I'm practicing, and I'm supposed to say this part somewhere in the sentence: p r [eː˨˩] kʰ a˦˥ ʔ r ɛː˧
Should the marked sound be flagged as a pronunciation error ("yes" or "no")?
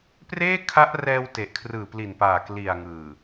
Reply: yes